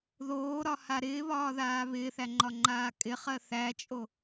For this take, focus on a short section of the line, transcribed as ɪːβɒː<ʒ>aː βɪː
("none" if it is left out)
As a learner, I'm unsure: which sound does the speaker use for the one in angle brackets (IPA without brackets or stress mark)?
ð